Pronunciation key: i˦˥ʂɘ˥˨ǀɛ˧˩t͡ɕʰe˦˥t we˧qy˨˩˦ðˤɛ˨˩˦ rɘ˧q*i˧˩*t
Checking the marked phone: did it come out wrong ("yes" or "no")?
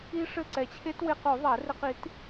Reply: yes